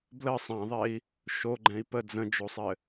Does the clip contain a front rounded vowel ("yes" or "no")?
no